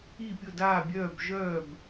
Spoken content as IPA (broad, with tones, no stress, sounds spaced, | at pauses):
i˧˩ pʲ ʊ˧˩ d aː˧˩ bʲ œː˧˩ b ʒ œː˧˩ b